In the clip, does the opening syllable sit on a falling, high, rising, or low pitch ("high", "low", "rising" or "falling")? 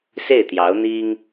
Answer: falling